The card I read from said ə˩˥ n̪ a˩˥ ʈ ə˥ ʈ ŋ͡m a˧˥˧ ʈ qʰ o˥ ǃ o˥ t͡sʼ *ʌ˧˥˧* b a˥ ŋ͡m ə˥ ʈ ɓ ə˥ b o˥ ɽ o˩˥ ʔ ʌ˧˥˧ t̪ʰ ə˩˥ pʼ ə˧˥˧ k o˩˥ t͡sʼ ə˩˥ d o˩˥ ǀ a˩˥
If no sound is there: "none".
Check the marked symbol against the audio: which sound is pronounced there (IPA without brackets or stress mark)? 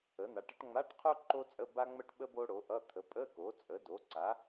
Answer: ə˧˥˧